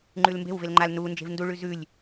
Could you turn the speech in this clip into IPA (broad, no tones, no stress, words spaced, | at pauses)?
ŋ͡ǃʉlmbe̤wvel ŋ͡ǃal nu nd͡ʒe̤vnduɭʉ zʉlʲ